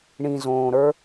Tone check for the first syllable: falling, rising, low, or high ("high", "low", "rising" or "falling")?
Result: low